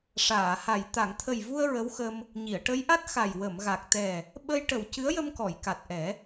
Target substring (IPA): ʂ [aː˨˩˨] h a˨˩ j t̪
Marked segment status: correct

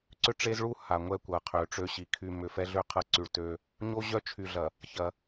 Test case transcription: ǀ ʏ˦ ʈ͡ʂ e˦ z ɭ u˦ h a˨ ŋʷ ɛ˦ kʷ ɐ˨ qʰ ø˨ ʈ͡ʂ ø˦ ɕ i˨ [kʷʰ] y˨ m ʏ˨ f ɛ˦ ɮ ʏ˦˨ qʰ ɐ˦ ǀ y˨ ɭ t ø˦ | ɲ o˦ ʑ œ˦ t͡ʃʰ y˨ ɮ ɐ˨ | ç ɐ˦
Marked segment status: incorrect: kʰ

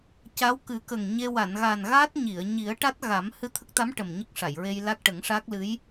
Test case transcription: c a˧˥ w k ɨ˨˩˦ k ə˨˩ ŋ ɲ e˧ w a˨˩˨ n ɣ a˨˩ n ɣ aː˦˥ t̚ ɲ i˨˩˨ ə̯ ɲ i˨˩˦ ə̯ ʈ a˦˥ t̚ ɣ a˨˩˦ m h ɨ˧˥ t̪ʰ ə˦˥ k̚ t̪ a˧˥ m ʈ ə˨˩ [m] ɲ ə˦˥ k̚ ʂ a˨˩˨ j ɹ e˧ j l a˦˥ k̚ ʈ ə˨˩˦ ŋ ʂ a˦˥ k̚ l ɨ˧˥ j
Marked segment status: correct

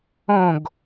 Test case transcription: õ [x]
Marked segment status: incorrect: ɡ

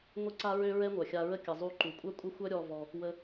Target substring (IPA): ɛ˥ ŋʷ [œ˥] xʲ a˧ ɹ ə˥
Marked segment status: incorrect: œ˩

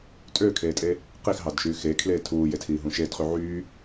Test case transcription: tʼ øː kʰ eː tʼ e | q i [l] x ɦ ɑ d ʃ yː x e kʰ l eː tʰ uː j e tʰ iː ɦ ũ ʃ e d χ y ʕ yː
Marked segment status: incorrect: none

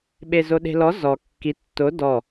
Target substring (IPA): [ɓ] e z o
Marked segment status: correct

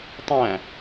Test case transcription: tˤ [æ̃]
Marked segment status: correct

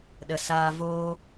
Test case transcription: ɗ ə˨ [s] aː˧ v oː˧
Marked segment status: correct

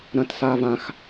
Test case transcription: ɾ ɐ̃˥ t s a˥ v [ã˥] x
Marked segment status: correct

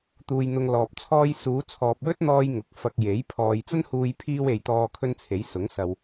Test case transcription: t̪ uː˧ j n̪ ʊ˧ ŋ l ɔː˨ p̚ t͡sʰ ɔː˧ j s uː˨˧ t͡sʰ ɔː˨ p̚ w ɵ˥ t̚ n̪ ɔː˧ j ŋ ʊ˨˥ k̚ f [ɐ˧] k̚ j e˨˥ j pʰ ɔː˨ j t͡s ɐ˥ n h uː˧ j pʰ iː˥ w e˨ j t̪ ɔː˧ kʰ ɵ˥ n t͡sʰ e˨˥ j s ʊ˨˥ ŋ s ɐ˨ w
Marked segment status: correct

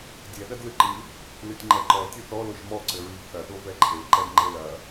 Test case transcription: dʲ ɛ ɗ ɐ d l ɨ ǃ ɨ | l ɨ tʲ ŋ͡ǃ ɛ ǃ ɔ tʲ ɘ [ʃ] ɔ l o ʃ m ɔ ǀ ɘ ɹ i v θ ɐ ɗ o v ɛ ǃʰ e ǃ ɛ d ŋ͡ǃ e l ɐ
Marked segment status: incorrect: θ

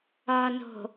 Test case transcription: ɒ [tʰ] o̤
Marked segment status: incorrect: n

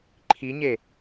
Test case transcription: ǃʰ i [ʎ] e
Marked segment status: incorrect: ɲ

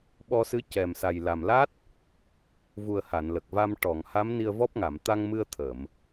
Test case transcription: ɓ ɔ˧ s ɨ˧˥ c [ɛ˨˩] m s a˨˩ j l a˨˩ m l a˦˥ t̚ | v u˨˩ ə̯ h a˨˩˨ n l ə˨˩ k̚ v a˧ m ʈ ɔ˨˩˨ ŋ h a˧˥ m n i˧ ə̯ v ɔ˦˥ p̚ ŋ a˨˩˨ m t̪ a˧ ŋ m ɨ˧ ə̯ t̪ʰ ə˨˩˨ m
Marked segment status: correct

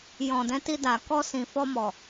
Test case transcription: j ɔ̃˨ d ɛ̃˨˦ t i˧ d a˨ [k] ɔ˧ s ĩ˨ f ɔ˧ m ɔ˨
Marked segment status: correct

